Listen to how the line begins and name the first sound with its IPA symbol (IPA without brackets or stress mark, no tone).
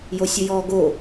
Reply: j